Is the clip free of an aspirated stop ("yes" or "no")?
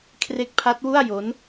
no